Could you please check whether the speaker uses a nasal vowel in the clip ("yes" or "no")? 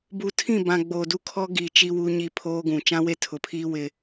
yes